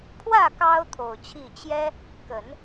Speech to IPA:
pʰwä˥˩ kɑ˥ʊ̯ t̪ʰo˨˩ʊ̯t͡ɕʰi˥˩ t͡ɕjɛ˥ | kə˨˩˦n

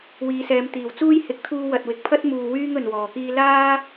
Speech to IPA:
wiː˨˧sɛː˨˧m t̪iː˨˩wt͡suː˥jhɪ˨˥k̚ t̪ʰuː˧wɐ˨t̚wɪ˨k̚pʰɐ˥t̚ muː˧wyː˥ŋ ɵ˨nwɔː˨˩kiː˥ laː˥

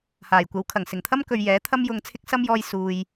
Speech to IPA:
haː˨˩jkʷɐ˨˥wkʰɐ˨˩ŋ sɪ˨˩ŋt̪ʰɐ˥mkɵ˨ɥ jɛː˨˥ t̪ʰɐ˥mjʊ˧ŋt͡sʰɪ˥k̚sɐ˥m jɔː˥jsuː˧j

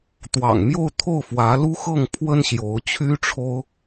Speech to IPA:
t̪wɑ̰˨˩ŋmjo˥˧ʊ̯t̪ʰo˥˩ʊ̯ fwä˧˥lu˥xɤ˥˩ŋ pʰwə˥nɕjo˧˥ʊ̯t͡ɕʰy˥ʈ͡ʂʰo˥ʊ̯

